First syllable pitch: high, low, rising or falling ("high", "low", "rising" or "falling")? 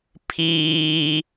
low